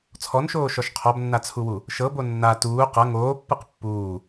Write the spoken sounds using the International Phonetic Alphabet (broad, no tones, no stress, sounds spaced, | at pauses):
t͡sʰ ɔ n ʃ oː ʃ ɔ ʃ qʰ ɔ b nː a t͡sʰ u w u | ʃ ɤ b o nː a t uː q ɤ ŋ oː pː ɯ q pː uː